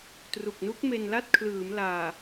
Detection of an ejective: absent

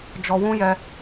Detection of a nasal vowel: present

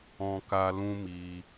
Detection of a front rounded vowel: absent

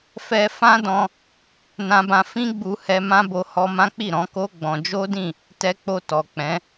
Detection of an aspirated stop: absent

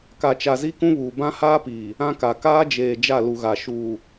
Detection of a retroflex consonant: absent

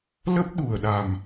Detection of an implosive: present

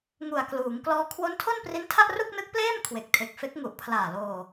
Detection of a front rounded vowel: absent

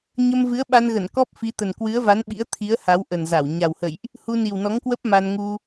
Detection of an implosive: present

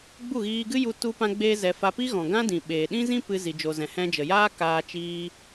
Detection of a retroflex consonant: absent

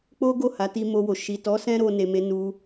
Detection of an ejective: absent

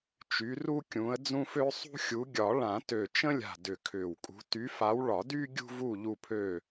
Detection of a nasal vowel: present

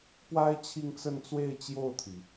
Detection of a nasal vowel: absent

